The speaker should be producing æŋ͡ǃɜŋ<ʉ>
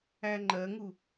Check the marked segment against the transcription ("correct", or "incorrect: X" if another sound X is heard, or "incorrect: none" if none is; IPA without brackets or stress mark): incorrect: u